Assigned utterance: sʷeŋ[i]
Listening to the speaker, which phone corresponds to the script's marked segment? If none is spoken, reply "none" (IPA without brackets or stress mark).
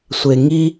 i